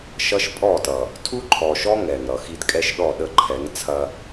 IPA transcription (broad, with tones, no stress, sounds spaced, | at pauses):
ʃ ʌ˦ ʃ pʼ ɔ˦˨ t ʌ˨ | tʰ u˦ ǃʰ ɔ˨ ʃ ɔ˦ ŋ ɛ˨ ŋ ɾ ʌ˨ x i˦ d kʼ ɛ˦ ʃ ɗ ɔ˦˨ ɗ ə˦˨ ǃʰ ɛ˨˦ ŋ t͡sʰ ɐ˦